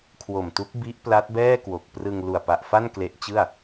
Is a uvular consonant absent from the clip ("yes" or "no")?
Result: yes